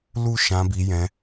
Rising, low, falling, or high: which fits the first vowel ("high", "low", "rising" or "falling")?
high